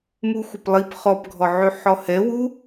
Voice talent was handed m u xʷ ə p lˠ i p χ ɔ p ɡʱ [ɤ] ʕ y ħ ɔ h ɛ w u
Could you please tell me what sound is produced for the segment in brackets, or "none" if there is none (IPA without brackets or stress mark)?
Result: ɔ